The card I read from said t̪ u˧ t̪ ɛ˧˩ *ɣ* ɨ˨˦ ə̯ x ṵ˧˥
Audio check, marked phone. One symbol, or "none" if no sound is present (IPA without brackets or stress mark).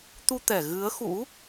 ɣ